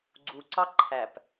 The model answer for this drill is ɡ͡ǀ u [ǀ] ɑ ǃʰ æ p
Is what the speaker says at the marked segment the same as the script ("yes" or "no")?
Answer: yes